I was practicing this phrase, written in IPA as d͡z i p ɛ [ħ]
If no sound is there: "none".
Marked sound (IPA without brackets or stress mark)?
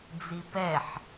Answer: ħ